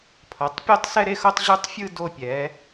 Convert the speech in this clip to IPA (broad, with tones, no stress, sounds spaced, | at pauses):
pʰ ʌ˩˥ tˤ pʲ o˥˧ tˤ s ɛ˥˧ ɾ e˥˧ x o˥˧ tˤ ʑ u˥˧ tˤ fʲ ɯ˥˧ d o˥˧ pʲ ɛ˩˥